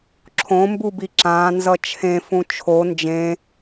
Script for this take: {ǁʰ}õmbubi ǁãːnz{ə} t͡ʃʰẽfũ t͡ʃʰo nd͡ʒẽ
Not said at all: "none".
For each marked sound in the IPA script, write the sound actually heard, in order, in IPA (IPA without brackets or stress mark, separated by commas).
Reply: ǁʰ, ʌ